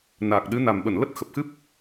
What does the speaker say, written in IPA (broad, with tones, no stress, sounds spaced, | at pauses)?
n aː˨˩ k̚ ɗ ɨ˨˦ n a˨˩ m ɓ ə˧˩ n l ə˦˥ t̚ x ə˨˩ p̚ x ɨ˦˥ p̚